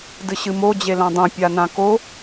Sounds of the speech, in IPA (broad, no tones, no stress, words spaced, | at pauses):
dɨɕɨmo d͡ʑelãdˤõ pʲanãko